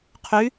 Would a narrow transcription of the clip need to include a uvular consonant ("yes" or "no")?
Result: yes